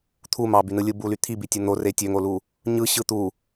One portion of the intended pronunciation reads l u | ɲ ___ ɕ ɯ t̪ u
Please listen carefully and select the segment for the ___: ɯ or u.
ɯ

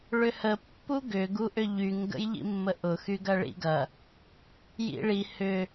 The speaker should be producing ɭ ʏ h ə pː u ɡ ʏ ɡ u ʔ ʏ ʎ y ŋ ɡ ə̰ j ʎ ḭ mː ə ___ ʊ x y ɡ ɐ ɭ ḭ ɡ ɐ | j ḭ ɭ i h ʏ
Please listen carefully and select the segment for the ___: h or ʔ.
ʔ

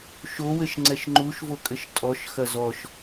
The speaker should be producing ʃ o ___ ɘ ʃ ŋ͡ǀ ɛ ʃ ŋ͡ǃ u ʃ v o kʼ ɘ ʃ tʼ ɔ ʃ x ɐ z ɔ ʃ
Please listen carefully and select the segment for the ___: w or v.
w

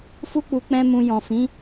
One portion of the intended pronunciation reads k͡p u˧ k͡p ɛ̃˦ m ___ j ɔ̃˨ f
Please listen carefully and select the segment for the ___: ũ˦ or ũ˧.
ũ˧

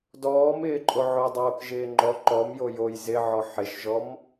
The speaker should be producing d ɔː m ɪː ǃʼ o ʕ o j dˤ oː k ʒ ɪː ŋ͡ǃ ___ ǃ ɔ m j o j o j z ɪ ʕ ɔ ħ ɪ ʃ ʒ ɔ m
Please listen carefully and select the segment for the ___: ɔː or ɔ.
ɔ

